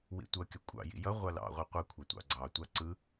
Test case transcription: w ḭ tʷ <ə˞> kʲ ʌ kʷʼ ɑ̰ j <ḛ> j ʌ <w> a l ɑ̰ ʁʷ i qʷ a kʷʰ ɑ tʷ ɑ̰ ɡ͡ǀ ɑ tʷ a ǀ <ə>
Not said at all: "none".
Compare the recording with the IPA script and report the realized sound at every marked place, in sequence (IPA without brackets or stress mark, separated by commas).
ʌ, ḭ, ʁʷ, ɯ